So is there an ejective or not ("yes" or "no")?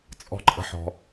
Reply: yes